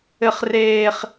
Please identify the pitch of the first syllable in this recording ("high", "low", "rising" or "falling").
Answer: low